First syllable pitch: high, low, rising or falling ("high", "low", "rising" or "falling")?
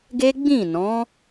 high